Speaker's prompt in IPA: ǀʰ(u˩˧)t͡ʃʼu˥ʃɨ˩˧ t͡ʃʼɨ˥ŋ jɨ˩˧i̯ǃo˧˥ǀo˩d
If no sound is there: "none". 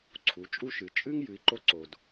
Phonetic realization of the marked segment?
u˩˧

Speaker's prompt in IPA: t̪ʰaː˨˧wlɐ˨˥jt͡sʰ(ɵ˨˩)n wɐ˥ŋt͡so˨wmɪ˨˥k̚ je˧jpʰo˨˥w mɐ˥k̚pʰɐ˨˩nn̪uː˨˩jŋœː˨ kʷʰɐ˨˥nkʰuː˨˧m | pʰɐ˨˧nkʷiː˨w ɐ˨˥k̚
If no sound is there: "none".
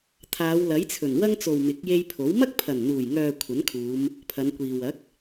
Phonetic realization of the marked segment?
ɵ˨˩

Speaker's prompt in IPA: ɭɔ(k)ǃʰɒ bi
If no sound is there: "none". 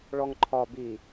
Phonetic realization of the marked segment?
ŋ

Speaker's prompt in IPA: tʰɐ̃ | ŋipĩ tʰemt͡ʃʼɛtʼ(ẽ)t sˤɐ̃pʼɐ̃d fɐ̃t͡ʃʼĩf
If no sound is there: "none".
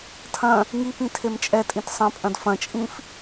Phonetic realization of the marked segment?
ĩ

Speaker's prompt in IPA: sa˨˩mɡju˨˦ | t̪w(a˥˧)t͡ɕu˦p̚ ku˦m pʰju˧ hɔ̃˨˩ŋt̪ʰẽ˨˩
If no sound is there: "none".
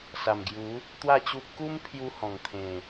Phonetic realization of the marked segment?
a˥˧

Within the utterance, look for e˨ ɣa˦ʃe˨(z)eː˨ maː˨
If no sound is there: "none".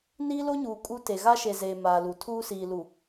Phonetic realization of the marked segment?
z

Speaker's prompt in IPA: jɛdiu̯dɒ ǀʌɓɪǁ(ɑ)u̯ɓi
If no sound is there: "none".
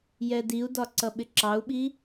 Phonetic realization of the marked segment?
ɑ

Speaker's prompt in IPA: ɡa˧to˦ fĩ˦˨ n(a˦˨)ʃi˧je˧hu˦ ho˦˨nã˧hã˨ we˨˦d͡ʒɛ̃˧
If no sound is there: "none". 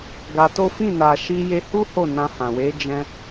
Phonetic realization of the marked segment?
a˨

